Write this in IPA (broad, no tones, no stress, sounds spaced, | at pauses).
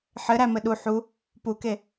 ħ ɘ ɾ æ m ɘ ɗ u ħ u | p u k e